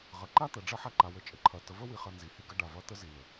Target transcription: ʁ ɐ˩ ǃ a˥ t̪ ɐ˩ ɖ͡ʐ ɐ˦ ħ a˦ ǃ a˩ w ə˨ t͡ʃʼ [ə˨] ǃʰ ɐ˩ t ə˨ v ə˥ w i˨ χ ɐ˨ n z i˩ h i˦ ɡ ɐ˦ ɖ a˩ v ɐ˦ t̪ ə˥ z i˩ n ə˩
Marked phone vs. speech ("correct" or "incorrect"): correct